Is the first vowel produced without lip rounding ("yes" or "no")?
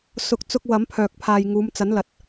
no